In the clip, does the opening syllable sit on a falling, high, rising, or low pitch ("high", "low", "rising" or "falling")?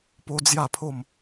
high